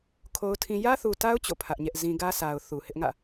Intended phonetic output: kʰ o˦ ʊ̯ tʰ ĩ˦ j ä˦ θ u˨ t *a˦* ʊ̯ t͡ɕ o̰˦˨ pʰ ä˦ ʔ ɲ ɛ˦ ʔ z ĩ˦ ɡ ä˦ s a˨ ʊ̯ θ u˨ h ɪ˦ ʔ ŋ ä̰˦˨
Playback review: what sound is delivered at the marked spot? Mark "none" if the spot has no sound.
a˦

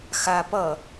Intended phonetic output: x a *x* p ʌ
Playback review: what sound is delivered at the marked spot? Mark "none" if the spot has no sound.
none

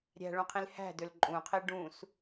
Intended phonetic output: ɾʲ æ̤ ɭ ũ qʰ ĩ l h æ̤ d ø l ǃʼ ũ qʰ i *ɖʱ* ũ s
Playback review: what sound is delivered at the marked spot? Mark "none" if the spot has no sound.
ɖ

